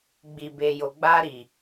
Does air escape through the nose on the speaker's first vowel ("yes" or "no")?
no